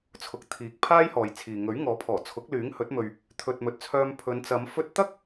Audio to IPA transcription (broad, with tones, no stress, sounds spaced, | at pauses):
t͡sʰ ʊ˨ k̚ t̪ʰ iː˨˥ k̚ pʰ aː˥ j h ɔː˨ j t͡sʰ iː˨ ŋ ɵ˨˥ ɥ ŋ ɔː˨˥ pʰ ɔː˨˩ t͡sʰ ʊ˨˥ k̚ l yː˨˥ ŋ h ɵ˨˥ t̚ m ɵ˨ ɥ | t̪ʰ ɵ˨ t̚ m ɵ˨ t̚ t͡sʰ œː˧ m pʰ ɵ˨˧ n t͡s ɐ˨˧ m f ɵ˧ t̚ t̪ ɐ˥ k̚